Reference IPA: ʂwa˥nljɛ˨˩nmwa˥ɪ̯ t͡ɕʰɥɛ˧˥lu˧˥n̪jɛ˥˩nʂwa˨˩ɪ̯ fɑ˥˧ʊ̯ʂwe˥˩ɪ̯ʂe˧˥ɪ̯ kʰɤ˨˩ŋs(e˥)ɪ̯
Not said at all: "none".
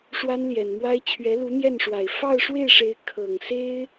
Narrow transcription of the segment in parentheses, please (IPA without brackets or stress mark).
e˥